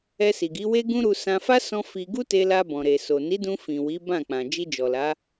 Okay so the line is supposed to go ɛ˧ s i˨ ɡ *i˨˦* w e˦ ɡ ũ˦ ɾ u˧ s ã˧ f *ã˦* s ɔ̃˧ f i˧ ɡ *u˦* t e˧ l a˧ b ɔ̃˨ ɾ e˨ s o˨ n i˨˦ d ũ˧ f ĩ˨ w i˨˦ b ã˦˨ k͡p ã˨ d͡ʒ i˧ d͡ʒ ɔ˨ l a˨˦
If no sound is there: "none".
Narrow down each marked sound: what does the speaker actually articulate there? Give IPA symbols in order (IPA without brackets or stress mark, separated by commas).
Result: i˨˦, a˦, u˦